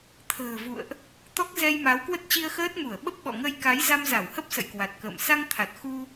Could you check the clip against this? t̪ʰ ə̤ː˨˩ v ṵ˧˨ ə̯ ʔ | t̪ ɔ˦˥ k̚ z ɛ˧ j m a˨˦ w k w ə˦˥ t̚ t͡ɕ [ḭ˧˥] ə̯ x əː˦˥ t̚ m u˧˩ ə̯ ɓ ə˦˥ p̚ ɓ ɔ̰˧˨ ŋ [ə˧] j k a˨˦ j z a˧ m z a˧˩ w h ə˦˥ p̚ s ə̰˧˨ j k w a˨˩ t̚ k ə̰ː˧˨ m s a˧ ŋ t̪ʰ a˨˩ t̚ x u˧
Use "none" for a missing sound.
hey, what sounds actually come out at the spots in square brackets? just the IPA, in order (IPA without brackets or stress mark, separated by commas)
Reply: i˧, ə˧